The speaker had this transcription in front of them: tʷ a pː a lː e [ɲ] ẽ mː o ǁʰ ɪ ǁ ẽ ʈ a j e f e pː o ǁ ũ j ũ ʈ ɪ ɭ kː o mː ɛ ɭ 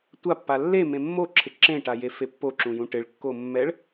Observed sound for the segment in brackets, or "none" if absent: m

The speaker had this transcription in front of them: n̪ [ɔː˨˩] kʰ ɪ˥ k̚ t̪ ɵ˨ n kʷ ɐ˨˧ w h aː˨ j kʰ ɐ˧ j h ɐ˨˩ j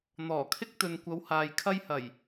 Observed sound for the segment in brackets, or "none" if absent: ɔː˨˩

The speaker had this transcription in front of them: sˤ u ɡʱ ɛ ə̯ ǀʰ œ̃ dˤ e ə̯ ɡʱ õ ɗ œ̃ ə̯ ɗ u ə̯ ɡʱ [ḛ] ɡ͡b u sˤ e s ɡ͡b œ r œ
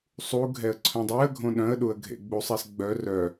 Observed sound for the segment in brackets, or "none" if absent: ḛ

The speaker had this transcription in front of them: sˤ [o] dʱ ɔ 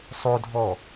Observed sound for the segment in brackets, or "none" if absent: o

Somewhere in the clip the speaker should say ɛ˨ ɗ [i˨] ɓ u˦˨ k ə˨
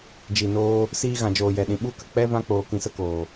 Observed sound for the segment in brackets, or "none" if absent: ĩ˨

